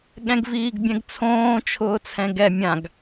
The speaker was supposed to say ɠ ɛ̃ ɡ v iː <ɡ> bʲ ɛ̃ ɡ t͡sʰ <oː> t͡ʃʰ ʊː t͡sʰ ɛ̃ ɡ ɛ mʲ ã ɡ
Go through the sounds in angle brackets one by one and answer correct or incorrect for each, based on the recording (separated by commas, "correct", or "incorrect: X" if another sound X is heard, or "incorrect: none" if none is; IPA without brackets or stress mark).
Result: correct, incorrect: õː